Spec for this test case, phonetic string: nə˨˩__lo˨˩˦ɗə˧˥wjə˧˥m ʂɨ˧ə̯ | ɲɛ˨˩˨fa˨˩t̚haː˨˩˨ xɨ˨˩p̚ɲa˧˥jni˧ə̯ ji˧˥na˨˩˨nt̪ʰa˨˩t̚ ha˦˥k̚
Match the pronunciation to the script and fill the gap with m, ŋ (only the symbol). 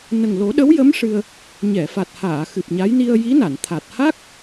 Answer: ŋ